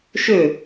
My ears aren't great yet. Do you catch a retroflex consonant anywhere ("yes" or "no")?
no